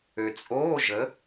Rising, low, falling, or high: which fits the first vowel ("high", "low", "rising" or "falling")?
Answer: low